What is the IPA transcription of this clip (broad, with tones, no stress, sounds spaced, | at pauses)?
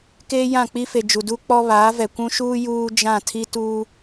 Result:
k eː˦ j ã˦˨ k͡p i˦ f e˨ d͡ʒ u˨ d u˦ k͡p ɔ˦ β aː˨˦ v ɛ˨ kʷ ũ˦ ʃ uː˦ j uː˦ d͡ʒ ã˦˨ tʰ i˦ t uː˦